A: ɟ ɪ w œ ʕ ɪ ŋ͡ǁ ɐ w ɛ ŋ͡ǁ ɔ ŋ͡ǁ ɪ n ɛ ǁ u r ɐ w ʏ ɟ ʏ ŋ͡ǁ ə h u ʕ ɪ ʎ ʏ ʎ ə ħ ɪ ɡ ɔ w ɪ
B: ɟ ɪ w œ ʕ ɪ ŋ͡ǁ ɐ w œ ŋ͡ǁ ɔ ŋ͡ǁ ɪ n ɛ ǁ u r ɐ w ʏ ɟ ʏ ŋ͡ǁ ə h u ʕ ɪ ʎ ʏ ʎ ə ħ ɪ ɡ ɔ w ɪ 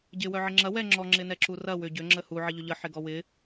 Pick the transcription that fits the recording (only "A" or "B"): A